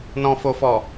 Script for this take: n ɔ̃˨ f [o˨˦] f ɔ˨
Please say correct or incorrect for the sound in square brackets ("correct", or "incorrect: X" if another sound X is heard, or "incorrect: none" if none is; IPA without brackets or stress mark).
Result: incorrect: o˨